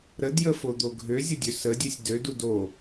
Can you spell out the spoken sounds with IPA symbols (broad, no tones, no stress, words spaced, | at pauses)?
ɾədjəfod̪o ɡʱøzʲədʲø sədʲesʲ dødud o